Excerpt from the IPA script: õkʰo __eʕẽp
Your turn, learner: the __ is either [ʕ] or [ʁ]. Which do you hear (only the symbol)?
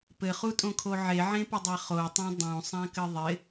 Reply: ʕ